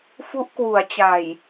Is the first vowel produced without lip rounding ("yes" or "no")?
no